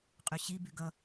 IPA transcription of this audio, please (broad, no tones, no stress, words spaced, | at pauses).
qʼyɕi byɡʌ